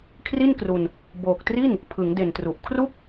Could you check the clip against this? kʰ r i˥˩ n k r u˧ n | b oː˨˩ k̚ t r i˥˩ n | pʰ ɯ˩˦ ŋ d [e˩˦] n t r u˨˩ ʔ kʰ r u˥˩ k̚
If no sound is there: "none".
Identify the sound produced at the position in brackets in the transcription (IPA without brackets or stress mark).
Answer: e˨˩